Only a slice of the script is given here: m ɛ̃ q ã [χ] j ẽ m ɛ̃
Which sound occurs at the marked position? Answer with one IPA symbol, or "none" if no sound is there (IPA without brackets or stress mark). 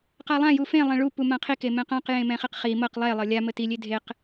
q